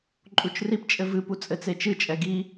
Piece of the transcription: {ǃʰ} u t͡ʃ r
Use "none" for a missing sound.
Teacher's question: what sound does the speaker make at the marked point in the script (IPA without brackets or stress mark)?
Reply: ǃʼ